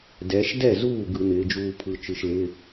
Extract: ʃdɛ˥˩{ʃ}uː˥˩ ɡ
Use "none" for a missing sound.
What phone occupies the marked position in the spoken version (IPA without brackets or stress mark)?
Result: z